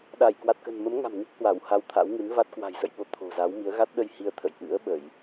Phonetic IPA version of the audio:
ɗa˧˩jkwa˨˩t̚kə̤˨˩n mə˨˦mŋa̤˨˩m ŋi˦˥k̚hwa˧˩w ha˧wt̪ʰa̰˧˥wŋɨ˨˦n va˦˥t̚kwa̤˨˩jsə̰˧˨jɓo˨˦ t̪ʰo̤˨˩za˨˦wmi˨˦ə̯ ɣa˦˥t̚ɗə˧j hi˧ə̯t̪ʰə̰˧˨j ʔɨ̰˧˥ə̯ɓə˧˩˨j

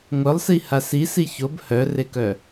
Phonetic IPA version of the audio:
ŋʷœlˠsiha sisi çob hœrekœ

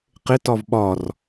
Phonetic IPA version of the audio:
qɪtɒv ɓɒr

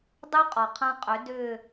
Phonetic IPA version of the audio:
dˤø˦ qʼɔ˨qʰã˦qʼʏ˨˦ dʏː˦˨

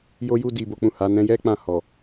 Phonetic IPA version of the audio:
jo˧ju˧ di˨bo˨k͡pũ˨ ha˨˦nɛ̃˦ jɛ˦ k͡pã˦˨hɔ˨

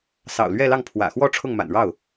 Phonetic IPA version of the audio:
sɑ̰˨˩ʊ̯lɥɛ˥˧lɑ˥˩ŋ pʰwä̰˨˩xwɔ˥˧ ʈ͡ʂʰʊ˥˩ŋma̰˨˩n ɻɑ˥˩ʊ̯

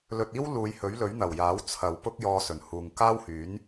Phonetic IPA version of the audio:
lɵ˧t̚ iː˥w luː˨˧jhɵ˨˥ɥlɵ˨˥ɥ n̪ɐ˨˩wjaː˨˥w t͡sʰɐ˨˧wpʊ˥k̚ jɔː˧sɵ˨˩nhuː˨ŋ kaː˥whyː˨˥n

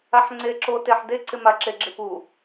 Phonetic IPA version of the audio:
aħŋ͡ǀeǁo teħdeǀɪ maǁeɡ͡ǁɪpu

